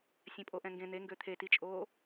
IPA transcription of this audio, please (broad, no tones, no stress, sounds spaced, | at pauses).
sʲ ɛ̃ pʼ o ʔ ɛ̃ ŋ ɡ ẽ n̪ e ŋ ɡ ø t̪ʰ e t i t͡ʃʼ oː